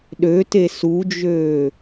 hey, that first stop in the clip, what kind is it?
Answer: implosive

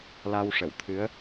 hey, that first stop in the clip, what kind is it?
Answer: aspirated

